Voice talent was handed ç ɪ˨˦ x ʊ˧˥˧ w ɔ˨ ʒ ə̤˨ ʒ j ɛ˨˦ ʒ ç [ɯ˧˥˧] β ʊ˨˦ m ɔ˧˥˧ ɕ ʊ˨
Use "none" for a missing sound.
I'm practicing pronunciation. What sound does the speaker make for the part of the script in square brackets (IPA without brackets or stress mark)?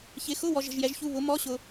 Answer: u˧˥˧